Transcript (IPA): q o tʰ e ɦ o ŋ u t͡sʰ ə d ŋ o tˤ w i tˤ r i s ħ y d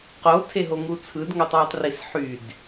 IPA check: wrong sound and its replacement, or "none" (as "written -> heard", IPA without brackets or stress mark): ə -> ɯ